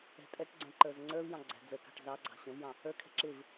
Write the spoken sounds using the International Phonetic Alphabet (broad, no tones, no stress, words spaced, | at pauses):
ɛ̤tʼɛʈɡ͡ǀɛ̃ ǃə˞zəŋ͡ǀə˞vjɑ̃ ɡ͡ǀæ̤d͡zəkɑ̤ʈ zɑɡ͡ǀɑ̤ ɕə̃vjɑ̃ | ə˞kʰɛ̤ ǁɪv